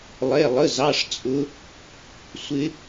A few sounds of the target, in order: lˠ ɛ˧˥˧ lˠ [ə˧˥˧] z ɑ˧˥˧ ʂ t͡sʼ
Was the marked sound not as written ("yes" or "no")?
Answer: no